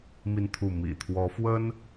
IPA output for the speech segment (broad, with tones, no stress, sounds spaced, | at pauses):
m i˥˧ n t̪ʰ u˥˩ m ḭ˨˩ t̪ʰ w ɔ˧˥ f w ə˥ n